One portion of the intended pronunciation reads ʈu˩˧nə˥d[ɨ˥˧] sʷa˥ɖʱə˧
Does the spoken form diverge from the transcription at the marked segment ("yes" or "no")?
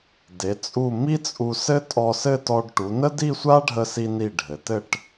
yes